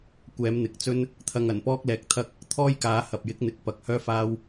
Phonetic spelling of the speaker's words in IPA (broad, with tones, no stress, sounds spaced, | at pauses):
kʷ ɛː˨˧ m n̪ ɪ˨˥ k̚ t͡s ɵ˥ n | t̪ʰ ɐ˧ ŋ ɐ˨˩ n p ɔː˥ k̚ l ɛː˧ k̚ t̪ʰ ɐ˥ k̚ | t̪ʰ ɔː˥ j k aː˨˧ h ɐ˨ p̚ j ɪ˨˥ k̚ n̪ ɪ˨ k̚ p ɐ˨˥ k̚ h œː˥ f aː˥ w